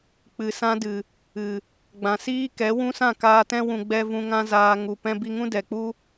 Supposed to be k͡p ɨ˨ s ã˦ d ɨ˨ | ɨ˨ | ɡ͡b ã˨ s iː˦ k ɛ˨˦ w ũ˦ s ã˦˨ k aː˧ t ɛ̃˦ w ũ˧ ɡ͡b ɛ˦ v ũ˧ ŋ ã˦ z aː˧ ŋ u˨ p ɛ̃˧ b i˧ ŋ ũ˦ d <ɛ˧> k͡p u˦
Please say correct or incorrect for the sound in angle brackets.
incorrect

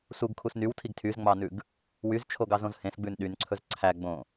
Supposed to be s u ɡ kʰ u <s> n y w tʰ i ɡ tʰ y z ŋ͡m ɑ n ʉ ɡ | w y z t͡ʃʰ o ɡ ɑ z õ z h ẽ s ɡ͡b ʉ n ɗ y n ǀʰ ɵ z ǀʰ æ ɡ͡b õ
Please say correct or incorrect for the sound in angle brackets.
correct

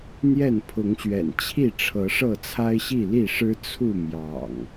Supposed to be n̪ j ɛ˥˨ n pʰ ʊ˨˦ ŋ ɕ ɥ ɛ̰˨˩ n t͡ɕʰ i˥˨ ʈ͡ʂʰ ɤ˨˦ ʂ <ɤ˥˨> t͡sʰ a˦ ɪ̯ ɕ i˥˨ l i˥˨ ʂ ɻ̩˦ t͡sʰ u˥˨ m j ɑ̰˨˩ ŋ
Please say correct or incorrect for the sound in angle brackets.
correct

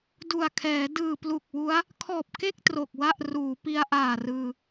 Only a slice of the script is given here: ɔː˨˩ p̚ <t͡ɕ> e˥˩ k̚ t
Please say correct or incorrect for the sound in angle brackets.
incorrect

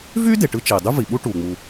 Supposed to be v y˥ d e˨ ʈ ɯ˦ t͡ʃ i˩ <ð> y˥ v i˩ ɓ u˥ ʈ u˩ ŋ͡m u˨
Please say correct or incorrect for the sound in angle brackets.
incorrect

